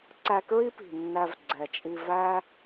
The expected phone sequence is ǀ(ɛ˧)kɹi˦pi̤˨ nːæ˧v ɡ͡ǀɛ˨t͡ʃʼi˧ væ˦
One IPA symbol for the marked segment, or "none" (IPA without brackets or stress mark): æ˧